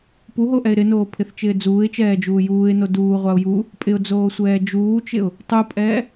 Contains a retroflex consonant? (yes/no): no